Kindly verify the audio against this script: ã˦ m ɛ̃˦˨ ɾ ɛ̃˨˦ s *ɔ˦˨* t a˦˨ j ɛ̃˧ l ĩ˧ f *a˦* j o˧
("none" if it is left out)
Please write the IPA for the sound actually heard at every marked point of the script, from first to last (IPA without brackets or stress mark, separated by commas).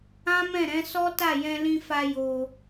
ɔ˦, a˧